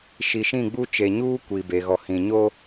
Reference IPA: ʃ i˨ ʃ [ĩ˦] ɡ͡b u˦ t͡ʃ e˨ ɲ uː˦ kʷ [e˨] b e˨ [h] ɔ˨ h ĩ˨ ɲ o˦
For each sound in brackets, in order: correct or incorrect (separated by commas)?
incorrect, incorrect, incorrect